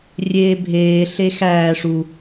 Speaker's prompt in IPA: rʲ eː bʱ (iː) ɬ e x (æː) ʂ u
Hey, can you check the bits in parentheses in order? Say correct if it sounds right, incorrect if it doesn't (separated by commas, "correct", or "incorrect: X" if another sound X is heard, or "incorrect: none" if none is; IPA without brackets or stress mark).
incorrect: eː, correct